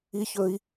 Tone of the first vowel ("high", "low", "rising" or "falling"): low